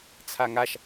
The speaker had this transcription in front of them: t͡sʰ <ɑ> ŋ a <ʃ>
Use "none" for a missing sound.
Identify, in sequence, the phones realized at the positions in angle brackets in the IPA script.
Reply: a, ʃ

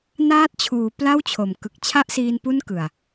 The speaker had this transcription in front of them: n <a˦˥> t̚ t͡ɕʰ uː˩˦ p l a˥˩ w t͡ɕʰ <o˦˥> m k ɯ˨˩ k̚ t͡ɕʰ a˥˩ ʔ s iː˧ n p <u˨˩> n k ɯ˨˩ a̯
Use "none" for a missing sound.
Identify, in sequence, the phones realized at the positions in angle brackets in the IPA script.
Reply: aː˦˥, o˨˩, u˥˩

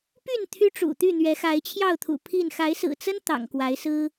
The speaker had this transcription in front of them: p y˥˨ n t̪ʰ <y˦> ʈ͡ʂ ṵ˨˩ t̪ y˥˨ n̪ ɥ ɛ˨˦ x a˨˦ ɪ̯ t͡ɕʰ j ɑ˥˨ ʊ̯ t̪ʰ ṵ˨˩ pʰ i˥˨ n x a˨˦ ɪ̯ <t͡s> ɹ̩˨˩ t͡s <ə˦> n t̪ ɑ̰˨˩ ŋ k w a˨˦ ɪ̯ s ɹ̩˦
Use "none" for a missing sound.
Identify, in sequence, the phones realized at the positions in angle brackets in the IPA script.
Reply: y˦, s, ə˦

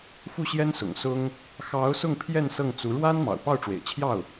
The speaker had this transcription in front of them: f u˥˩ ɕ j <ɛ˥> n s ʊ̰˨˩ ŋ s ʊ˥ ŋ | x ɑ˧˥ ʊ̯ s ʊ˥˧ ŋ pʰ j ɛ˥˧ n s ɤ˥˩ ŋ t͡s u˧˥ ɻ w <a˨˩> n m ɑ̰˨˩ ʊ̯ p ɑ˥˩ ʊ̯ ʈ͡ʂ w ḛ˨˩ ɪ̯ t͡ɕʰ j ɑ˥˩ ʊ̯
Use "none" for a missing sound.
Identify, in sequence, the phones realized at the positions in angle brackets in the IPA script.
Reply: ɛ˥, a˥

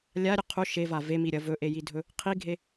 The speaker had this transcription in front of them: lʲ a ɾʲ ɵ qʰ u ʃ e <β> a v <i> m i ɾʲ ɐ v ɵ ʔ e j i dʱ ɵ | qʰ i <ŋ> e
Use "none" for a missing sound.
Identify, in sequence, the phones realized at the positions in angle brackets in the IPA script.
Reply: v, e, ɡʱ

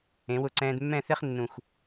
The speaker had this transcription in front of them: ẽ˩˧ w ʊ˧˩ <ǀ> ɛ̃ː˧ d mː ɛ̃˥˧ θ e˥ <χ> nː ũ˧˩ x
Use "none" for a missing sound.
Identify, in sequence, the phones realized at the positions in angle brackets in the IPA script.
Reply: ǀ, χ

